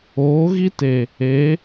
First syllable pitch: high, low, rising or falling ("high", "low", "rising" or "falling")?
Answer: rising